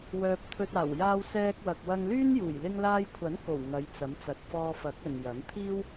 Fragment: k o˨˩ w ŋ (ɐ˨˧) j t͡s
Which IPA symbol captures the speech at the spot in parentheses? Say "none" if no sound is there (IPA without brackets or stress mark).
ɐ˨˧